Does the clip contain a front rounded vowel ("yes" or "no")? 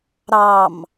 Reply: no